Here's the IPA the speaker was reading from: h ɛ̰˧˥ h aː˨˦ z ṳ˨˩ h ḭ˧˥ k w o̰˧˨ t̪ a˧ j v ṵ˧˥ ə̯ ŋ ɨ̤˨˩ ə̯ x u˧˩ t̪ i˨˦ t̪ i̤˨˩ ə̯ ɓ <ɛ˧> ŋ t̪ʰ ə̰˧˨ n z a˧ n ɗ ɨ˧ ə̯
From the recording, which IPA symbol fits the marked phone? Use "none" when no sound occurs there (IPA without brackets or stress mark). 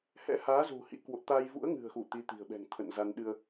ɛ̤˨˩